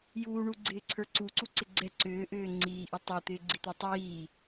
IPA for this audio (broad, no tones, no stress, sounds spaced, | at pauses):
j uː ɳ u ɡ͡ǀ ɪː ǀʰ ə˞ ǀ u ǀ u ǀ ɪ ɡ͡ǀ ɛ ǀ ʏː ʔ ʏː ŋ͡ǀ iː ʔ i tˤ ə˞ t̪ ɪː ɡ͡ǀ i t̪ ə˞ tˤ iː